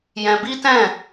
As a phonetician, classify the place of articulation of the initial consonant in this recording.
palatal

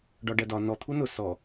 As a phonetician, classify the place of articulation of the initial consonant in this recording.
retroflex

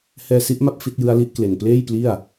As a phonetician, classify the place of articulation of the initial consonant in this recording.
glottal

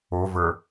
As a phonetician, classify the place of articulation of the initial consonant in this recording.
labial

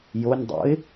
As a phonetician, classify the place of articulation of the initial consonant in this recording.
palatal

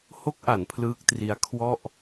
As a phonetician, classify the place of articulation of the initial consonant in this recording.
glottal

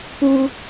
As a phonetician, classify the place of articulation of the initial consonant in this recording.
labial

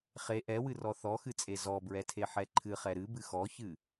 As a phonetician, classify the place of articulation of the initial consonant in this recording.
uvular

